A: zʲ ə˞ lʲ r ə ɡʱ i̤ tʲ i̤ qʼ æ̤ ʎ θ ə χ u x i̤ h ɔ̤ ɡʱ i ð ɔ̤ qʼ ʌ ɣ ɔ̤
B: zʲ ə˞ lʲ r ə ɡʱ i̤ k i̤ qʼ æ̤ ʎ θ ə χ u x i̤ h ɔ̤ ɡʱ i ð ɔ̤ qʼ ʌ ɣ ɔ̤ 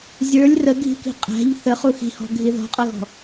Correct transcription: B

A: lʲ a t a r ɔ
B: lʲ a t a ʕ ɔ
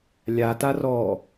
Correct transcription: A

